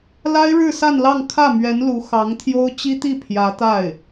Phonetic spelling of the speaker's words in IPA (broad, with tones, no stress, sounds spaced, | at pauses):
l a˥ ɪ̯ ɻ ɻ̩˥˧ s a˥˧ n l ɑ˥˧ ŋ kʰ ä˥˩ m ɥ ɛ˧˥ n l u˧˥ x ɑ˧˥ ŋ t̪ʰ j o˥ ʊ̯ t͡ɕ i˥ t̪ i˥˩ pʰ j ä˧˥ t̪ a˥˩ ɪ̯